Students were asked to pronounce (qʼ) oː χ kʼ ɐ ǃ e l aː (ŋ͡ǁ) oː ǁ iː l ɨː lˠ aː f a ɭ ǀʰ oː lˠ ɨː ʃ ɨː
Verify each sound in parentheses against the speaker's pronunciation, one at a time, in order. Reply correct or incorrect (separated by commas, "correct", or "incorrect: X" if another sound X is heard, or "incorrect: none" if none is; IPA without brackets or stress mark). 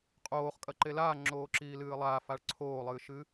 correct, correct